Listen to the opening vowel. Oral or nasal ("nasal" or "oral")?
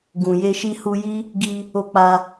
nasal